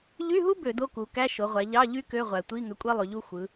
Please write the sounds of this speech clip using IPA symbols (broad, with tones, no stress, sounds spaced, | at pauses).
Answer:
ʎ y˧˥˧ ɦ u˥ b ø˧˩˧ d o˧˥˧ k u˩˧ k æ˧˥˧ ʃ o˩˧ ʁʷ æ˩˧ ʎ ɑ˧˥˧ ʎ y˥ k ø˧˥˧ ʁʷ æ˩ tʷ i˧˥˧ ŋ ø˨˥ kʷʼ e˥ lˠ y˩˧ ʎ u˥ xʷ ɯ˩˧